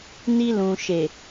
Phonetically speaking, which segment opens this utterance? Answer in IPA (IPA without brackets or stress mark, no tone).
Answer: n